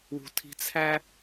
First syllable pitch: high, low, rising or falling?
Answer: low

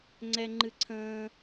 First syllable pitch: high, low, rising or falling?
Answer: high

